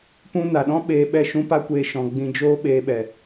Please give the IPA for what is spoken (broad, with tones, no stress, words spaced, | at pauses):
pũ˦ na˨ɗɔ̃˦ ɓeː˧ɓɛ˦˨ ʃũ˦pa˦kʷeː˧ ʃɔ̃˧ ɡ͡bĩ˧d͡ʒoː˦ ɓeː˧ ɓɛ˨